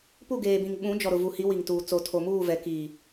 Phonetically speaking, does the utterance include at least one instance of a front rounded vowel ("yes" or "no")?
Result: no